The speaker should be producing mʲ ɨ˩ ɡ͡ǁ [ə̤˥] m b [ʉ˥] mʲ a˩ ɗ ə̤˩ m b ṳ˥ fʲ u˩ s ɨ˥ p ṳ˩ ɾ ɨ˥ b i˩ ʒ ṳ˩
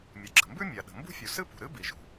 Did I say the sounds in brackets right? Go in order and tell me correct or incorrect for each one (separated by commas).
incorrect, correct